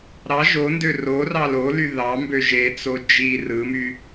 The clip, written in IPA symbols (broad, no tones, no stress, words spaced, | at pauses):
ɾɑ ʒondø rorɑ loly ðɑmbø ʒet͡so d͡ʒi rɯmy